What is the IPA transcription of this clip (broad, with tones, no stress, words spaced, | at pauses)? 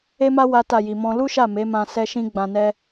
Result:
e˦ma˦ wa˦ta˦˨ ji˨mɔ̃˧ lu˦ʃa˦˨ me˨˦mã˧ sɛ˦ʃĩ˦ ɡ͡bã˧nɛ˦